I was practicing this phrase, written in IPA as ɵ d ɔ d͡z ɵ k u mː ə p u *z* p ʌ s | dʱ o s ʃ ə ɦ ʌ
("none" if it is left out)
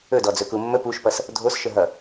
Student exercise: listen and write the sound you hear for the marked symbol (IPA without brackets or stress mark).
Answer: ʃ